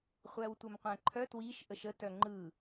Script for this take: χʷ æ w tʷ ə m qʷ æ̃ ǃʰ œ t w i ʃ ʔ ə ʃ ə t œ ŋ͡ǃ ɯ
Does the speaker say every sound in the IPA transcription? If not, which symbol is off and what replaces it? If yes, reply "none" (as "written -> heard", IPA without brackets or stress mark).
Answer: none